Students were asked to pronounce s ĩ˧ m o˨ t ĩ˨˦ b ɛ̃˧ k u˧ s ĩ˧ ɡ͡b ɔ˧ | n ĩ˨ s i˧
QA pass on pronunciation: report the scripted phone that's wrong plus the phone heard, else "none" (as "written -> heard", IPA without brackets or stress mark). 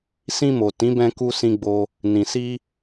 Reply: ɔ˧ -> o˧